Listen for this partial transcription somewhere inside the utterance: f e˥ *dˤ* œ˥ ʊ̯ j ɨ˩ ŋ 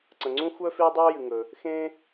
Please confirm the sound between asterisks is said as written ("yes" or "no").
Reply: yes